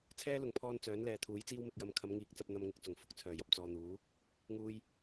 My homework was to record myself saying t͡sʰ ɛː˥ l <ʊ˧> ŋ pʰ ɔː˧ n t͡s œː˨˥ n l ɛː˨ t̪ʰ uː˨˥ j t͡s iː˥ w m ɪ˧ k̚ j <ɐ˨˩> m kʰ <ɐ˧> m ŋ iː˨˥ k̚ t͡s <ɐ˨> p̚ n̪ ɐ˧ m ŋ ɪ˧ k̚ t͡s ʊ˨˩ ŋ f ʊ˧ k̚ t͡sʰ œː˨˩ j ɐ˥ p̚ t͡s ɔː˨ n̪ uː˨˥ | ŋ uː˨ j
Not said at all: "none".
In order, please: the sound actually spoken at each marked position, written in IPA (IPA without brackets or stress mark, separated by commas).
ʊ˨˩, ɐ˧, ɐ˨˧, ɐ˧